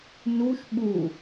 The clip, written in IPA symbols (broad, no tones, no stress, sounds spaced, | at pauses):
n u ʃ ɓ u